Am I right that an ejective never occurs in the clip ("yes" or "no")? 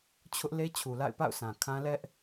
yes